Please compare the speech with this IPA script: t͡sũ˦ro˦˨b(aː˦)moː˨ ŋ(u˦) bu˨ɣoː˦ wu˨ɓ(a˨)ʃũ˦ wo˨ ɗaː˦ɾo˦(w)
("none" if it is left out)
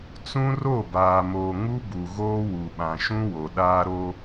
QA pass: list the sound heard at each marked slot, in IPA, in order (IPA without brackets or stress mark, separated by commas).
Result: aː˨, u˦, ã˨, none